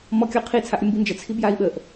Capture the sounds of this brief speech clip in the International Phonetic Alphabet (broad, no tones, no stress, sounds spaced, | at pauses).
m ɔ kʲ ɔ qʰ i t͡sʰ a ʔ ɾʲ ə m b i n d͡ʒ ə t͡sʰ i b j a i̯ ɓ ə ʔ